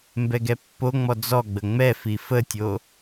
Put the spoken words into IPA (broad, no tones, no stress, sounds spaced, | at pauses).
m b ɛ ɡ ɛ pː o ŋ͡m ɔ d͡z ɔ ɡ͡b ə ŋ͡m ɛ f i f ə tʲ o